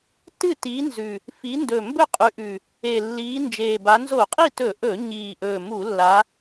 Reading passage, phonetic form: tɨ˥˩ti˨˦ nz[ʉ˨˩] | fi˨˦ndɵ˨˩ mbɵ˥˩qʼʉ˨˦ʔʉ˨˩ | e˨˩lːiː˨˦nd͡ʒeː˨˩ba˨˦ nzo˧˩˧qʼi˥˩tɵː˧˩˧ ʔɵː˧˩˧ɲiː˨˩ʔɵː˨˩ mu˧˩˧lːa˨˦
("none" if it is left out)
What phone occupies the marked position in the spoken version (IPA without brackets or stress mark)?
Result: ʉ˨˩